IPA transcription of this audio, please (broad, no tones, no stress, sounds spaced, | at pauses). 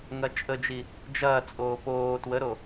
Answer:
ŋ ɐ t͡ʃʼ ə d͡ʒ i | d͡ʒ ɐː t͡sʼ oː p oː t w ə ɾ o